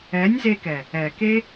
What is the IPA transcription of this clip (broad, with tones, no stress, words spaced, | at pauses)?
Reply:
ɛ˨˦nʲze˧kɛ˨ | ɛ˨ke˦